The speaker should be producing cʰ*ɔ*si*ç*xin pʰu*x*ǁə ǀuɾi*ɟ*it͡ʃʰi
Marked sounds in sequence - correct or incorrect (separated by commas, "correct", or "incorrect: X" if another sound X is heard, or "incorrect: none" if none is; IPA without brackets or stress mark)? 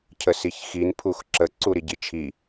incorrect: ə, correct, correct, correct